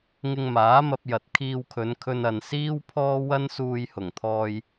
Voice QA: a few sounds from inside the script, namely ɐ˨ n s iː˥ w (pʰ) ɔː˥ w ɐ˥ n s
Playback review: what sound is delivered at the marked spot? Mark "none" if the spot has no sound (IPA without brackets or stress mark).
pʰ